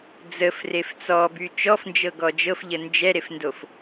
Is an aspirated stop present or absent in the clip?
absent